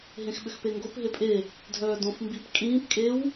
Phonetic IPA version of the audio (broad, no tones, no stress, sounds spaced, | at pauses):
ɦ ẽ x ɓ ʏ x p e ŋ ɡ o p ɦ e pʼ e | dʱ œː d õ f m b i p kʼ ĩː p kʼ e w